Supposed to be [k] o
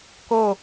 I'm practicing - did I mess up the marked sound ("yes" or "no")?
no